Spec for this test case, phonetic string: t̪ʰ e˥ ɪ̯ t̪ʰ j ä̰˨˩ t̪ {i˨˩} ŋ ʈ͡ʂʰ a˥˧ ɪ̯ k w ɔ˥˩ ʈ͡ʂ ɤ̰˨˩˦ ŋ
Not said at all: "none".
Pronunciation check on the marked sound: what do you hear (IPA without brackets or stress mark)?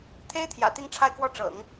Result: i˥˧